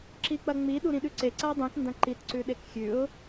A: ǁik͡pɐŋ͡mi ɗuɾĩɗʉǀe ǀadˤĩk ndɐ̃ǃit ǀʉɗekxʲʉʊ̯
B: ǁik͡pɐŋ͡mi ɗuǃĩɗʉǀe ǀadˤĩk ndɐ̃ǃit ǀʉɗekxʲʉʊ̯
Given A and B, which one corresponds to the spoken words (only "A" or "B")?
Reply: A